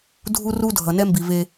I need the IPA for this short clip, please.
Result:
dʱ u˦ r u˦ dʱ ʌ˨ n ɛ˦ m b i˨ v e˦

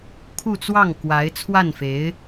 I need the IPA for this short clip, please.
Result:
kʰ u˥˧ t͡s w ɑ˥˩ ŋ k w a˧˥ ɪ̯ t͡sʰ w a˥˩ n f e˧˥ ɪ̯

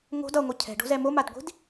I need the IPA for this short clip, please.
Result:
ŋ o̤ d ʌ ŋʷ ɯ cʰ ɛ̤ ɖ o̤ z ɛ m o m a d ɡʷ i̤ d

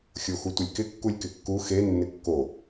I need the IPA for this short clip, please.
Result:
xʲ o x u tʷ ɪ lʲ k ɪ kː u lʲ k ɪ kː u x e nː ɪ kː o

